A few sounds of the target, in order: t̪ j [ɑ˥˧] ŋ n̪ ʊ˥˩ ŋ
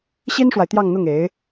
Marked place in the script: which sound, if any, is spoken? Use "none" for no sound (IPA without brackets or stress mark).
ɑ˥˧